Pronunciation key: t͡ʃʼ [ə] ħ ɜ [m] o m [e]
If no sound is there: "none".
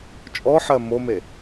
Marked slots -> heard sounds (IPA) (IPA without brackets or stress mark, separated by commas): ɔ, m, e